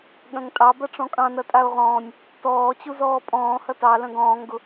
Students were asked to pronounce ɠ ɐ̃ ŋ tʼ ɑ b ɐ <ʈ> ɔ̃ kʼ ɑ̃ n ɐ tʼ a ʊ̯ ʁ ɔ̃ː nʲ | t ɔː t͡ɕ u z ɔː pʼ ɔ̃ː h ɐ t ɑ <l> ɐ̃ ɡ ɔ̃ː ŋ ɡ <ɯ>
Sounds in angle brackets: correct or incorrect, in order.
incorrect: ʈ͡ʂ, correct, incorrect: ʊ

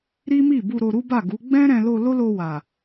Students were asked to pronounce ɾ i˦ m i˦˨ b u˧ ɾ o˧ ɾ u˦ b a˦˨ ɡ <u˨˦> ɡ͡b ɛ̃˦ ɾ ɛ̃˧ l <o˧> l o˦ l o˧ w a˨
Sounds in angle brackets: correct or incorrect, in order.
correct, correct

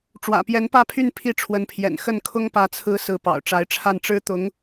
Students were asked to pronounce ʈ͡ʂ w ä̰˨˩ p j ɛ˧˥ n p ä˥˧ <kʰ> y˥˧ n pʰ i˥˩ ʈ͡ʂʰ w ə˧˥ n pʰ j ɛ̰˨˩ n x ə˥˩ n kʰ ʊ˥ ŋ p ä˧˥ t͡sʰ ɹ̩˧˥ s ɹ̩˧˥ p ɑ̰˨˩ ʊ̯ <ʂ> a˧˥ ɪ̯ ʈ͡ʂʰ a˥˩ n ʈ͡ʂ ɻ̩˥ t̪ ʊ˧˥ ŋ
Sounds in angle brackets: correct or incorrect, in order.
incorrect: pʰ, incorrect: ʈ͡ʂ

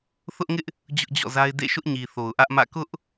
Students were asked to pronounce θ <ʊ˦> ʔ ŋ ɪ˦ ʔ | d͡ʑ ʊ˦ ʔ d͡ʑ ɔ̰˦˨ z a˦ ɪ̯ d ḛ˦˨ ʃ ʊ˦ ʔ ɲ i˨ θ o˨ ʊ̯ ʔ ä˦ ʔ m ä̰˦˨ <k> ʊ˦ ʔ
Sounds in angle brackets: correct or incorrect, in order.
correct, correct

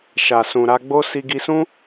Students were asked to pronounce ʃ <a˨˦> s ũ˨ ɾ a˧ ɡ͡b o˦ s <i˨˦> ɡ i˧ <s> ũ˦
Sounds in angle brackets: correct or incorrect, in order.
incorrect: a˨, incorrect: i˧, correct

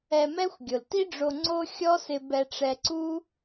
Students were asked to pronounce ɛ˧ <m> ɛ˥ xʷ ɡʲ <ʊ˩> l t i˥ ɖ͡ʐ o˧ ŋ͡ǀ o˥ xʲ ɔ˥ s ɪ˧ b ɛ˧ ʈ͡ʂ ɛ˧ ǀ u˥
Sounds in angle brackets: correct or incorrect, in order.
correct, correct

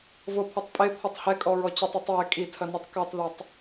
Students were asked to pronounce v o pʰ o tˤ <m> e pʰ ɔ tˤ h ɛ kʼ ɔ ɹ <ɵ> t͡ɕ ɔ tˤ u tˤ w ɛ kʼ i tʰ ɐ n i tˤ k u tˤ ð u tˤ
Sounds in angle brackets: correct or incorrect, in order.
incorrect: pʼ, incorrect: ɔ

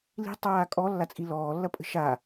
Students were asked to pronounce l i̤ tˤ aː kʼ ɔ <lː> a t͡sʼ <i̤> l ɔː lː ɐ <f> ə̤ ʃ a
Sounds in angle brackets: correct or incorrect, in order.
correct, incorrect: i, incorrect: pʼ

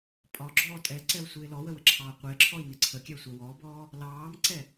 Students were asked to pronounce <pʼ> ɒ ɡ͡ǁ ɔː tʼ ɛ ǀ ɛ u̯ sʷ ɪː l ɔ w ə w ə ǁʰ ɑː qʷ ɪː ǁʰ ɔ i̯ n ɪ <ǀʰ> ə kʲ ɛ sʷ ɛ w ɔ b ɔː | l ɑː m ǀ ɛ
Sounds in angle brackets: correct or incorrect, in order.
correct, correct

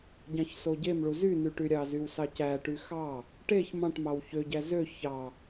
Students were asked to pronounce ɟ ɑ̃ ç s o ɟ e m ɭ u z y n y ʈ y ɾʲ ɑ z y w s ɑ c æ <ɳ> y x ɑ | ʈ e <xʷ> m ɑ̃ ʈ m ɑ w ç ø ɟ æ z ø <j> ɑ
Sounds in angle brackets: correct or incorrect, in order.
incorrect: ʈ, incorrect: ç, incorrect: ç

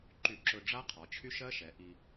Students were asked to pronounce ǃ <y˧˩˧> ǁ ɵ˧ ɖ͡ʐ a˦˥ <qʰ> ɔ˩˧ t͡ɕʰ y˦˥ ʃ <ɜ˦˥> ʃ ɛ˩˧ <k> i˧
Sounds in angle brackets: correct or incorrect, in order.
correct, correct, correct, incorrect: ʔ

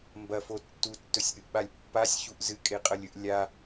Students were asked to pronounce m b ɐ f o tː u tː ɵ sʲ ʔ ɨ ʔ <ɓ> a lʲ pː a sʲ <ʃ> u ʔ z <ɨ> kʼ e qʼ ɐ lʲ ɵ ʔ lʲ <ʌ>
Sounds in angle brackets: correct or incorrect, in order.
correct, incorrect: ç, correct, incorrect: a

